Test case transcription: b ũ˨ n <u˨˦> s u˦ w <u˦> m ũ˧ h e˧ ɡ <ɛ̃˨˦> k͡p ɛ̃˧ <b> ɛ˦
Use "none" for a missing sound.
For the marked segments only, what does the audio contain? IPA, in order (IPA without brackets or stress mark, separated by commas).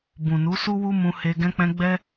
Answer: u˨˦, u˦, ɛ̃˧, ɡ͡b